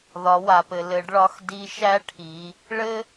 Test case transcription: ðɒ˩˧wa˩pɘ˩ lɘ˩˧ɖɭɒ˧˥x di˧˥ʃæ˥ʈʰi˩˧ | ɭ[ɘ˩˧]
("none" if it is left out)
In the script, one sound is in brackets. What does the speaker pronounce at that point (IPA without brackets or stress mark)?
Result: ɘ˥